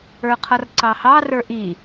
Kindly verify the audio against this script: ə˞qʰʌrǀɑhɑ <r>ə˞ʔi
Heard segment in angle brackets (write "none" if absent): r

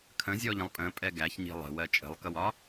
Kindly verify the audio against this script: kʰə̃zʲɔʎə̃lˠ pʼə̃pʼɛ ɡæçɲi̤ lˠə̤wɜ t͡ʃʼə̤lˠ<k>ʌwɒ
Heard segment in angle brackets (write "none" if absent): k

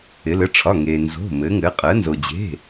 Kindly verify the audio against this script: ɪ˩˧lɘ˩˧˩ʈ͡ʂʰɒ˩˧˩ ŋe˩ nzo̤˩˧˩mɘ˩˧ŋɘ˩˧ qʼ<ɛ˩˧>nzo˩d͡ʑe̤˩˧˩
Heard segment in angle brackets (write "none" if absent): ɜ˩˧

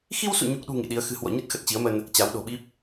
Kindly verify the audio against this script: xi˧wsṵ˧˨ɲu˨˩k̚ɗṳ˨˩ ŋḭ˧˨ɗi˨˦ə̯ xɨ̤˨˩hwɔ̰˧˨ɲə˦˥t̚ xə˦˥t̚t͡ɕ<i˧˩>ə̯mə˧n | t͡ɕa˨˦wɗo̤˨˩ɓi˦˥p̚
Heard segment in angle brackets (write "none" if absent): i˨˦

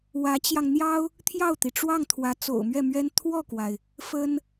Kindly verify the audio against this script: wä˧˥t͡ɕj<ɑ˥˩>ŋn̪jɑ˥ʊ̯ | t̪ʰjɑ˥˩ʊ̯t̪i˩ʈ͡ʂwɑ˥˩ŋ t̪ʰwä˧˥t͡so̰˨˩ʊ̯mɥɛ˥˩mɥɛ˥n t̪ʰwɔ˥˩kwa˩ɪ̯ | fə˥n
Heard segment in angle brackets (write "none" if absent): ɑ˧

